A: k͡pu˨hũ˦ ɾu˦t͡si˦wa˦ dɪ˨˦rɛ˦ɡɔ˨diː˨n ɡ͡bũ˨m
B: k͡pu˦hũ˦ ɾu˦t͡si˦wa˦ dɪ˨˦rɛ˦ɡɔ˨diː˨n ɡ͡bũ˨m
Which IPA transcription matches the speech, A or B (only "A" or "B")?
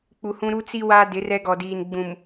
A